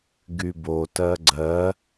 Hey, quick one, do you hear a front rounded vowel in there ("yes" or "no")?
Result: yes